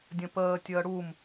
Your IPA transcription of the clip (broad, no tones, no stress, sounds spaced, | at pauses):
dʲ ə̃ p əː tʲ əː ɽ u m